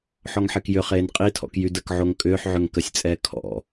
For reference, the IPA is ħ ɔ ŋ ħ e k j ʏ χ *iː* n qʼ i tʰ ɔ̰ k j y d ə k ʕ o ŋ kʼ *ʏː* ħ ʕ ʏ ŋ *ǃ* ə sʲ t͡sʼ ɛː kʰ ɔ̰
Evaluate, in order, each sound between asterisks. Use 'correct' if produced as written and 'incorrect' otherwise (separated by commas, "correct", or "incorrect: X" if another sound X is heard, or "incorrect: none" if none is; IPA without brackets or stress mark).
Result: incorrect: eː, correct, incorrect: k